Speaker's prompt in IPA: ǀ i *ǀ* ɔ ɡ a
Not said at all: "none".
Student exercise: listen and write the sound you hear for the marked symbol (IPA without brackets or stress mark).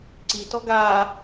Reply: t